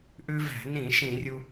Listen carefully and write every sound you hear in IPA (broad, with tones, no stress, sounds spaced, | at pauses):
ʔ ʉ˧ v æ̤˧˩˧ n ĩ˧˩˧ ʃ ĩ˧˩˧ rʲ u˧